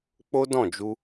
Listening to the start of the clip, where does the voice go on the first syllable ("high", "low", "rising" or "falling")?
high